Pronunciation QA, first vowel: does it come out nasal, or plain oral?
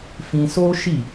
nasal